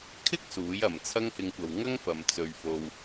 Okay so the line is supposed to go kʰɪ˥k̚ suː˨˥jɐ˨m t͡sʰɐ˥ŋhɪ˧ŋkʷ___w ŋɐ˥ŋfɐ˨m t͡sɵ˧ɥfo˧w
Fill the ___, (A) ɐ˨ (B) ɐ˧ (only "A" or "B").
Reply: A